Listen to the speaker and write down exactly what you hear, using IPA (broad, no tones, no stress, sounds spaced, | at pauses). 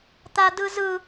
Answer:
t̪ a d ɯ z ɯ